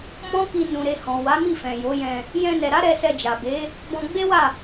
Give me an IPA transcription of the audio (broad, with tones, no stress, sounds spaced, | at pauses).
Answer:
m ɔ̃˦ k i˧ n ũ˨ ɾ e˨ h ɔ̃˨ w a˨˦ m i˦˨ f ɛ̃˨ j o˨˦ j ɛ̃˧ | j ɛ̃˧ n ɛ˨ ɾ a˨˦ ɾ ɛ˧ s ɛ˧ d͡ʒ a˨ b e˨˦ | b ɔ̃˧ ɡ͡b e˦ w a˦˨